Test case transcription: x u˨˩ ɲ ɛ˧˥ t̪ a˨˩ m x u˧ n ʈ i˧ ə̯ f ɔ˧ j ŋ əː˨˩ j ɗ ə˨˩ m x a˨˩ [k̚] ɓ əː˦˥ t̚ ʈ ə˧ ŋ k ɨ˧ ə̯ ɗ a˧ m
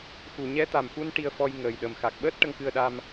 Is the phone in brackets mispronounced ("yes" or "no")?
no